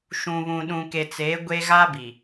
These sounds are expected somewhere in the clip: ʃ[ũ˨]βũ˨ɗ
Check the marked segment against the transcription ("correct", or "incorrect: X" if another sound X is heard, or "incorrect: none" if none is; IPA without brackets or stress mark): correct